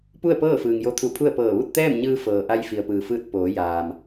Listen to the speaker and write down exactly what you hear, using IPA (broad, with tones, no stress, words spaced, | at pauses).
pu˥˨ə̯pɤː˥˨fɯː˩ŋ jo˧˥t̪ʰu˧˩ pʰu˥˨ə̯pɤː˧˩ ʋu˥˨t̚t̪ɛː˥˨mɲɯː˧fɤː˩ ʔa˧j fi˩ə̯pɯː˩fɯː˧t̚ poː˩˧jaː˩m